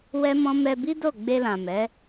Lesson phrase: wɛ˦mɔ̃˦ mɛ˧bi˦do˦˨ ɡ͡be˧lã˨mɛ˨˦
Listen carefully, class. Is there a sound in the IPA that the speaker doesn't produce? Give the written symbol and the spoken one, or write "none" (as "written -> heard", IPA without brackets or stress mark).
none